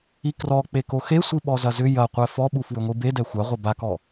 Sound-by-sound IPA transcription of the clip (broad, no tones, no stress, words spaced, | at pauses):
ikrɔk͡pe koxesʷiɓɔ zɐzʏ jɐqʷɛ fɔɓu fwʏŋʷibe dɛxʷaʁʷɐ bakɔ